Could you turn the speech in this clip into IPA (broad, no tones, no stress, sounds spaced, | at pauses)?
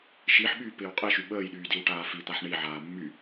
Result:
ʃ i ħ ɓ yː p ɪː w qʼ i ʃ y ɓ əː j ɗ yː d i w ʈ aː f i t̪ a ħ ɳ i ʕ aː mː y